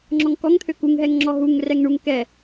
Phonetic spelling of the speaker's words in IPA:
ŋ͡ǁɔŋkɔŋt̪ʰø kuŋɦɛŋŋ͡ǁɔ ɦuŋ rɛŋɳuŋ kɛ

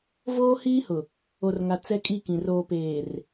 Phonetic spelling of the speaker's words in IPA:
voː˦hiː˦hʊ˨ | o˨rŋa˨ t͡sɛ˦kʼi˦˨kĩ˨ roː˨peː˨r

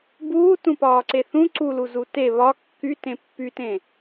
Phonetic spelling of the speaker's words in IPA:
buː tũpɒːǀeθũ ǀulu zute βɒ kːytẽ pːytẽ

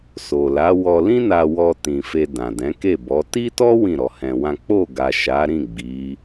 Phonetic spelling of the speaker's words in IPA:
so˨la˨˦ wɔ˧lĩ˦na˧ wɔ˧tĩ˨ fe˧dã˨dɛ̃˨˦ke˦˨ bɔ˨˦ ti˦tɔ˦ wĩ˦˨ɾɔ˧hɛ̃˧wã˦ k͡po˦˨ɡa˨ ʃa˨˦ɾĩ˦˨ ɡ͡bi˨˦

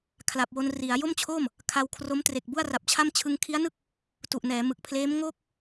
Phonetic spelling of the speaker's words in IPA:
kʰla˨˩p̚wo˧nri˩˦a̯ jo˥˩mt͡ɕʰoː˥˩m | kʰa˧wkʰro˦˥m tre˨˩k̚bu˥˩a̯ra˨˩p̚t͡ɕʰa˥˩m t͡ɕʰɯ˧ŋkʰi˦˥a̯nɯ˥˩k̚ | tu˨˩ʔnɛː˩˦ mɯ˨˩k̚pʰleː˦˥mŋoː˥˩k̚

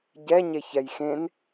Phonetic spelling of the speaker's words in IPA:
ɟɛ ɲeçɛjxẽn

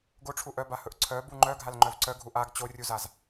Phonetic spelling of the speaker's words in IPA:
ɡoʈ͡ʂʰu ʔœbahɵʔ ǀʰœbu ŋ͡ǃœɡʱalŋ͡ǃœv ǀœɡʱu ʔaɡ t͡ɕorʲuzaz

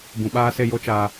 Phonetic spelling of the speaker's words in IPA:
bũ˨ɓaː˦se˦˨jo˦ t͡ʃaː˨

